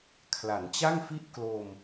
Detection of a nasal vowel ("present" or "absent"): absent